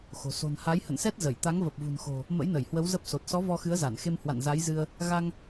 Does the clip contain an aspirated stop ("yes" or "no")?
no